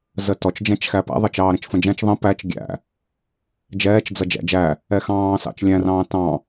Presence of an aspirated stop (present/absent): absent